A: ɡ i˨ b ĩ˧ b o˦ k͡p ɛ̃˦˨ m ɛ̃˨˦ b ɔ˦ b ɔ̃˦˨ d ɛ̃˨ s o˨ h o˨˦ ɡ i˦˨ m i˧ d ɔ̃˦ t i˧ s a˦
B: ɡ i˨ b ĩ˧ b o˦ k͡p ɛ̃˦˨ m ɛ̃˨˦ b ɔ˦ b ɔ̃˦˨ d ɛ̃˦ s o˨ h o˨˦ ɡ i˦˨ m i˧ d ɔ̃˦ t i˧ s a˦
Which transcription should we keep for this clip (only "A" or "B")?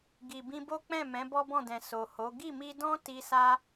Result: A